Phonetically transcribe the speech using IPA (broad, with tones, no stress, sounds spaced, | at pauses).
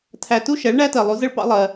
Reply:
tʰ æ˨ t u˦ ʃ ɛ˨˦ ɭ ɳ æ˦ t ɜ˨ lˠ u˨˦ z ə˦ ɭ p ɑ̰˦ lˠ ɜ˦